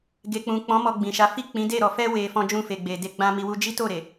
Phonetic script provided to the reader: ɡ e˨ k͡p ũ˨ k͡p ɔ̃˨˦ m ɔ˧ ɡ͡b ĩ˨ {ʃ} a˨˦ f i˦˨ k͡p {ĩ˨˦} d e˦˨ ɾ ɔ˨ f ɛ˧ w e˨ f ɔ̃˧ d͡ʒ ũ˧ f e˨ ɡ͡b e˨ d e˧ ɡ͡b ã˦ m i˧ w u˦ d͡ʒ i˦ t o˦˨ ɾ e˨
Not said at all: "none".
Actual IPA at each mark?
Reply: ʃ, ĩ˨˦

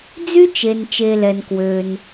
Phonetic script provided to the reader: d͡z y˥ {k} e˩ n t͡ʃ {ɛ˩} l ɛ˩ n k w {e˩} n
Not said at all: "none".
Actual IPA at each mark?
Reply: t͡ʃ, e˩, ø˩

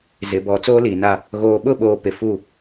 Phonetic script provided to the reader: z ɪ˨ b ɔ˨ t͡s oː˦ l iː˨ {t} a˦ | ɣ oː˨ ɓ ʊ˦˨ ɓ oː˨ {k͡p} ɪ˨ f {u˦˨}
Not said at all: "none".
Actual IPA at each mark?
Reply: n, p, u˦˨

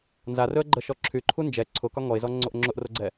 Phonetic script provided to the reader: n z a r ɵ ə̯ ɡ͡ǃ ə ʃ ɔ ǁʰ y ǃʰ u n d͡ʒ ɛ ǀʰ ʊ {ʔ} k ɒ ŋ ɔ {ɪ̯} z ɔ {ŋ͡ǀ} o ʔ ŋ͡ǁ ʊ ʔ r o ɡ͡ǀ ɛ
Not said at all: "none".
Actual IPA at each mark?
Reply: none, ɪ̯, ŋ͡ǀ

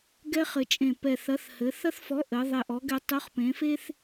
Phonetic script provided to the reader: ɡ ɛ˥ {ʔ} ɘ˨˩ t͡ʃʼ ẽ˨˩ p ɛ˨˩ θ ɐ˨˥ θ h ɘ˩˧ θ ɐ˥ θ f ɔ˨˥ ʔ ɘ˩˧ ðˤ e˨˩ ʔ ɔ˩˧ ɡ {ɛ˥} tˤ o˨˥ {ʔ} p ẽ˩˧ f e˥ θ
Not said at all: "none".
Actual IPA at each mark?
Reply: χ, ɛ˩˧, χ

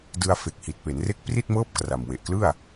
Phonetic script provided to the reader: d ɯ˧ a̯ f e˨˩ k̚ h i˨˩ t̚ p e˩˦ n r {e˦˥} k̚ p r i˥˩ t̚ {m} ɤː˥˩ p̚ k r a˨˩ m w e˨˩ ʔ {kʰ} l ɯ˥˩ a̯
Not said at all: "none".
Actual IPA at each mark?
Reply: e˦˥, m, k

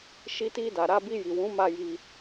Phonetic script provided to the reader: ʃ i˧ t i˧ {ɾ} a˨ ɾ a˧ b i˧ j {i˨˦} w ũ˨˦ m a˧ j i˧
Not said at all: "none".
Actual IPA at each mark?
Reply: d, i˨

